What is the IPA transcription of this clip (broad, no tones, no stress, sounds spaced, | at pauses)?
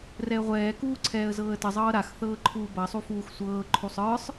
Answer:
r ɛ ə̯ ʁʷ ɛː k uː ǀʰ ɛː ə̯ z ɤː ə̯ t ə zˤ ɤː ɾ a x θ ɤː ǃʰ uː b ɐ sˤ u f uː x sʷ ɤː ǃʰ u sˤ ə˞ sˤ